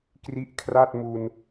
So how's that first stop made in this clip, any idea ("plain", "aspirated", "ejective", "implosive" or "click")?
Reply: plain